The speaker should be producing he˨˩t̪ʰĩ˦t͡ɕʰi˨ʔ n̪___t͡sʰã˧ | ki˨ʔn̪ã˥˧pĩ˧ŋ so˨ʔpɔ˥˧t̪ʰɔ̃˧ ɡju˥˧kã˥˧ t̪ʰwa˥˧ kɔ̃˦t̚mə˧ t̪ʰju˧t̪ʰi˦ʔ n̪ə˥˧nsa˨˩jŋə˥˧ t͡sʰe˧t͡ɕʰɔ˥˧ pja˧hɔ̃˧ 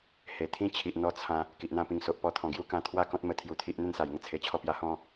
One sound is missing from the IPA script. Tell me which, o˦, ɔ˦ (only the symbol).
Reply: ɔ˦